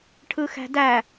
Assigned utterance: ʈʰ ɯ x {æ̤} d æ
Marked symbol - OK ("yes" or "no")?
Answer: yes